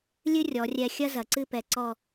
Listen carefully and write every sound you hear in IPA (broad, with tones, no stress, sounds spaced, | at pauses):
lʲ ɨ˥ rʲ ɔ˩˧ rʲ ɛ˧ xʲ ɐ˥ z ɐ˩˧ ǀ ɨ˥˧ p ɛ˧˩ ǀ ɔ˥˧